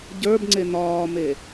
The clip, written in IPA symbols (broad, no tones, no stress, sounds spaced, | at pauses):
ɟ ə˞ b ŋ͡ǀ e n ɒː m e